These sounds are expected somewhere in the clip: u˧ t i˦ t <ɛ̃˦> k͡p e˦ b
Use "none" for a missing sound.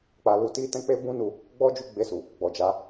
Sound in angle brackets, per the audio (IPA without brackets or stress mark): ɛ̃˦